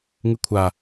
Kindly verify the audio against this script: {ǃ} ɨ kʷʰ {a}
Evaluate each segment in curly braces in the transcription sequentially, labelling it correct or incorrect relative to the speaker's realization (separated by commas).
incorrect, correct